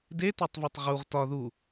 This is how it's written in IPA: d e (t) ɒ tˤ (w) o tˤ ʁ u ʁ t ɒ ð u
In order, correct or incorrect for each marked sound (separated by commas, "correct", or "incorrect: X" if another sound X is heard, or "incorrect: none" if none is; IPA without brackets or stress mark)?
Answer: correct, incorrect: v